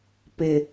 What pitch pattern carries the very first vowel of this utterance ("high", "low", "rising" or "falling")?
low